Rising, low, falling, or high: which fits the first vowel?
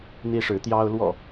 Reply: high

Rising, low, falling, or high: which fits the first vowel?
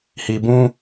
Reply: low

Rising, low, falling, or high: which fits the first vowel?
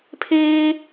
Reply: high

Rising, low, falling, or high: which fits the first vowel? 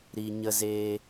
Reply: low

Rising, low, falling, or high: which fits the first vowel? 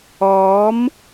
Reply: rising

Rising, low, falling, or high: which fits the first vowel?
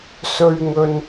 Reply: low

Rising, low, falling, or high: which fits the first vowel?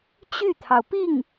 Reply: falling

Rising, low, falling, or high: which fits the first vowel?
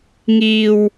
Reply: low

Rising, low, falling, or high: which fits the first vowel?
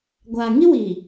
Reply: low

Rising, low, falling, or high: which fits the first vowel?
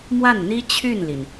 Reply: falling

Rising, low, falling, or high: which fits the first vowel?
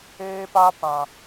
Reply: high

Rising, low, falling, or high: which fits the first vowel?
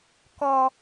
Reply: low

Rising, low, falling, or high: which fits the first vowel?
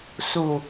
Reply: low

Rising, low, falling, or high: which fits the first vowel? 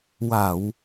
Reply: low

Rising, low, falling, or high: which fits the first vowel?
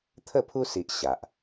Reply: falling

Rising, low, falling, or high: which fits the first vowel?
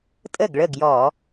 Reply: falling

